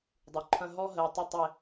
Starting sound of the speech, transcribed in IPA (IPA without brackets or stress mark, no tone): dˤ